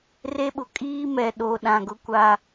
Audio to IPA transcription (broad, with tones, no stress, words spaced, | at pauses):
re˦ɓʊ˨ kʼiː˦mɛ˨ ɗo˨ ɗã˨ ɡʊ˦kʷa˦